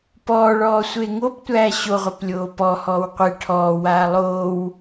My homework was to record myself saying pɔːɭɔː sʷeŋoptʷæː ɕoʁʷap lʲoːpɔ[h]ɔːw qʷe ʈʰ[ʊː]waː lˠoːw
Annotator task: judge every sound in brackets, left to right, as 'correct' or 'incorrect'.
correct, incorrect

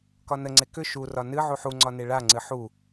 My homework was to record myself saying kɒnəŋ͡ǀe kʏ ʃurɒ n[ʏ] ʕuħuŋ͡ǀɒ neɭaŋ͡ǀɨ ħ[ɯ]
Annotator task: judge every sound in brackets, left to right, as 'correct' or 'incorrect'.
incorrect, incorrect

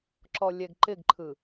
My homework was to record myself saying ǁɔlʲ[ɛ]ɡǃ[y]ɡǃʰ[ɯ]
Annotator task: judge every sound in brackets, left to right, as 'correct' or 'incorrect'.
correct, incorrect, correct

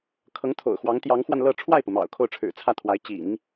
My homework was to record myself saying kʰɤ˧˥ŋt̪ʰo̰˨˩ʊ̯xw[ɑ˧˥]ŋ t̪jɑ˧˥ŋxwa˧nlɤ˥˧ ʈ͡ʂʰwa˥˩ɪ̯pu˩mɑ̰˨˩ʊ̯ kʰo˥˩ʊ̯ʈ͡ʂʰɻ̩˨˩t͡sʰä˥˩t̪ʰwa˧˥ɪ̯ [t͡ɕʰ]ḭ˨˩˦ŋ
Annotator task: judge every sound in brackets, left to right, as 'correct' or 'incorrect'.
correct, incorrect

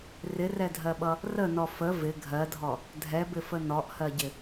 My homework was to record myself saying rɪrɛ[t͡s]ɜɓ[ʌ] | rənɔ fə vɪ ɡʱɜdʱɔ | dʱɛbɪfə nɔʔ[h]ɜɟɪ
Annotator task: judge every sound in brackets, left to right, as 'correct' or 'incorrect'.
incorrect, correct, correct

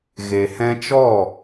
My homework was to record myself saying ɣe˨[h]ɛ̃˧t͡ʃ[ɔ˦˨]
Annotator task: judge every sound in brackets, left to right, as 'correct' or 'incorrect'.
correct, correct

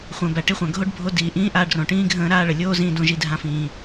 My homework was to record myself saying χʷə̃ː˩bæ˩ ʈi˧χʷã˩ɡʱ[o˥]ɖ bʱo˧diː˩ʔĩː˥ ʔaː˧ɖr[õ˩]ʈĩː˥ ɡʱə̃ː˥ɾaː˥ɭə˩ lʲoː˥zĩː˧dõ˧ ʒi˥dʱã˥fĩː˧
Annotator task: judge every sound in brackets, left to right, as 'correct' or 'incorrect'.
correct, correct

